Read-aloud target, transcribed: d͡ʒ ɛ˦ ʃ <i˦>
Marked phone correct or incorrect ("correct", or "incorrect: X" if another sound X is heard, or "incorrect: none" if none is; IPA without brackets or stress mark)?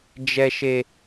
incorrect: e˦